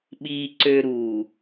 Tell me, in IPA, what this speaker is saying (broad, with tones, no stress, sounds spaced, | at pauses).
ɓ iː˨ ǀ ø˨ ɾ uː˨